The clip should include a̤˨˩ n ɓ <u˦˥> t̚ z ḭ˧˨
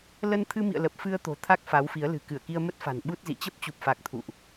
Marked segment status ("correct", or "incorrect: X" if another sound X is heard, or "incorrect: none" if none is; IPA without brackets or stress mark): correct